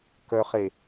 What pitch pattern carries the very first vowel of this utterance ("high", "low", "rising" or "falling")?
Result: low